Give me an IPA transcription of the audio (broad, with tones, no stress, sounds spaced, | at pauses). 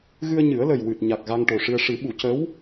ɣ ɨ˧ ə̯ ɲ ɨ˨˩˦ ə̯ l ə˨˩ j w ɨ˨˩ t̚ ɲ a˨˩ k̚ ɣ a˧ ŋ ʈ o˨˩ ʂ ɨ˧ ə̯ ʂ ɨ˨˩˦ ɓ u˨˩˦ c ə˧˥ w